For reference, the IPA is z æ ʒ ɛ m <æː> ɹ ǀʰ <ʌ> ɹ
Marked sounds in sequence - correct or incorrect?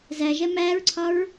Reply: correct, incorrect

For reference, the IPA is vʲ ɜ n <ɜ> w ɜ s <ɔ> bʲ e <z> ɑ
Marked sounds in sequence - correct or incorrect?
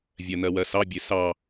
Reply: correct, incorrect, incorrect

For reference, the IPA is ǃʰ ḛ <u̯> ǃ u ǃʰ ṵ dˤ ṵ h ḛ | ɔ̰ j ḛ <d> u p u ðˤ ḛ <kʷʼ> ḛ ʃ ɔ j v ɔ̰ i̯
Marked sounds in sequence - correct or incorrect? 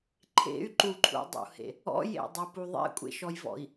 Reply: incorrect, incorrect, correct

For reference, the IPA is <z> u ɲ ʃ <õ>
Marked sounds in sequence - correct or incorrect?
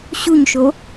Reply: incorrect, incorrect

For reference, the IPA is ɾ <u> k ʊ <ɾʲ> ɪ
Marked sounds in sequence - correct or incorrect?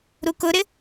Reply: correct, incorrect

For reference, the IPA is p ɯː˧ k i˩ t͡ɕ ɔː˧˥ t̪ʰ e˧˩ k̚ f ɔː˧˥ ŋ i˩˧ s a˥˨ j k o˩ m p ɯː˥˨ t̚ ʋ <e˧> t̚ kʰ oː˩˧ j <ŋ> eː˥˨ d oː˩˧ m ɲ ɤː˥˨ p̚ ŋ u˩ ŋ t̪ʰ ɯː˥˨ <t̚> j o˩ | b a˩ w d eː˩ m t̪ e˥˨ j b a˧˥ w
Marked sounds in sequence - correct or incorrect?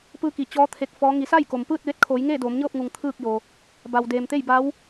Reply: correct, correct, incorrect

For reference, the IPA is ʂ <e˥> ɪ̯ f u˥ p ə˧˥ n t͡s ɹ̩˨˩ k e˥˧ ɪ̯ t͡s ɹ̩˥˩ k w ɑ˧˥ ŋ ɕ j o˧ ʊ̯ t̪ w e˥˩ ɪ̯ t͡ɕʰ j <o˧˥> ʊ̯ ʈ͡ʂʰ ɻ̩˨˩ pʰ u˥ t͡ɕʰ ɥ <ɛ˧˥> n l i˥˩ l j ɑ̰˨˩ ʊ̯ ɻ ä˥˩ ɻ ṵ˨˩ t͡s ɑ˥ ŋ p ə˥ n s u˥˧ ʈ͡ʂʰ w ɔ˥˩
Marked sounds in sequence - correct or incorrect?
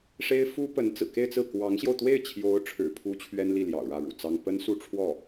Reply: correct, correct, incorrect

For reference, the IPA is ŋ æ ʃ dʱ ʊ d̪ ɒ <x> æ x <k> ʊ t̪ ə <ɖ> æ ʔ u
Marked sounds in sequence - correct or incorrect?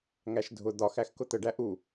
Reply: correct, correct, correct

